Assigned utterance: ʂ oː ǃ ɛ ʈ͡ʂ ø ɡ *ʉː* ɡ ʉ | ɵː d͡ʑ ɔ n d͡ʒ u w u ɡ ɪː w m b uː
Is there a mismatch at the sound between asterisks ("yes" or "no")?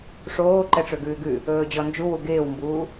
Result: no